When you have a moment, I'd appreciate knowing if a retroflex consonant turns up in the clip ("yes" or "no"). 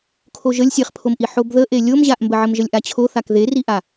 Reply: no